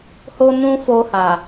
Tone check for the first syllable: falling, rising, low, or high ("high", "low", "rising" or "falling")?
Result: high